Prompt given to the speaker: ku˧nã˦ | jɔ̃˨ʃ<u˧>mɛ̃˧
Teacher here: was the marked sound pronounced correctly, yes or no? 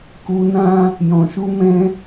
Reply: yes